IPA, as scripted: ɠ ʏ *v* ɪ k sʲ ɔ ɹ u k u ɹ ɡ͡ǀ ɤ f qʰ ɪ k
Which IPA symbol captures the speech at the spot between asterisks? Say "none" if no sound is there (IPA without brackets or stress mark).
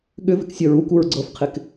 v